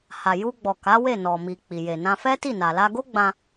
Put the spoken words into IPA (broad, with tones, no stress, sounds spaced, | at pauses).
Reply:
h a˨ j u˧ ɡ͡b ɔ˨ k a˨˦ w e˦˨ n ɔ˨ m i˨ k͡p i˨ j e˨ n ã˧ f ɛ˦ t i˦˨ n a˨ l a˧ ɡ o˦ ɡ͡b ã˧